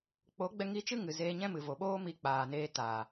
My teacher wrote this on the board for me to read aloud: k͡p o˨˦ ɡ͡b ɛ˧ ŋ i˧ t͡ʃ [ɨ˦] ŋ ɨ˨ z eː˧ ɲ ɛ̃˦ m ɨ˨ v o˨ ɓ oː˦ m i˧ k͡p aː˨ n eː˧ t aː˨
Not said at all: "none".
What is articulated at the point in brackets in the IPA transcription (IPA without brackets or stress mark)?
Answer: ɨ˦